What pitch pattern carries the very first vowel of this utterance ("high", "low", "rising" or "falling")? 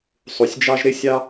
low